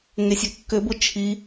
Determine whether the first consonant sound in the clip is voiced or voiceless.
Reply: voiced